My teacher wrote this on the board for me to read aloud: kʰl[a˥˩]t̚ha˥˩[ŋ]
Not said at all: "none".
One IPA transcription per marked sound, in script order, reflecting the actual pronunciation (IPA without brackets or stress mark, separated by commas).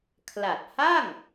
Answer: a˨˩, ŋ